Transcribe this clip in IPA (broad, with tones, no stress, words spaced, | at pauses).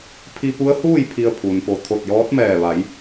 pʰi˧pu˧˥ə̯huː˥˨j pʰi˧ə̯pʰu˩npo˧˩ t̪ʰo˧˩t̚jɔː˧˥t̚mɛː˧˩ʋa˩˧j